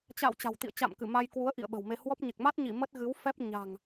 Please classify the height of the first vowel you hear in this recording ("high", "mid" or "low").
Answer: low